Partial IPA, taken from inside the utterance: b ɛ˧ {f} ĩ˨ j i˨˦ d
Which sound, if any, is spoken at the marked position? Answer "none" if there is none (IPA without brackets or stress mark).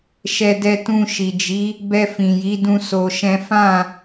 f